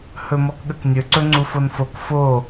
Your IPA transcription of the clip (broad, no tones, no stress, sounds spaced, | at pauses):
h ɵ m ɔ k ɠ ə k nʲ ɵ ǀ ɵ ŋ͡ǀ u f o n f o k f o